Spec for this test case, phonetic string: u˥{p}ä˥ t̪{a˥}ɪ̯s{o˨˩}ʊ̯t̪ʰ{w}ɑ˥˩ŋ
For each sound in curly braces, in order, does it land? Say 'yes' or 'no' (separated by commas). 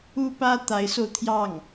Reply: yes, no, no, no